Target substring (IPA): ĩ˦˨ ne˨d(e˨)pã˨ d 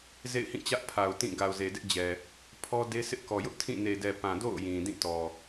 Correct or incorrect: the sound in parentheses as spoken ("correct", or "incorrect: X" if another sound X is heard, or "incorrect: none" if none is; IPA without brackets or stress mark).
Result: incorrect: ɛ˨